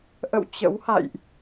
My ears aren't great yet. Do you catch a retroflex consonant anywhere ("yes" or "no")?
no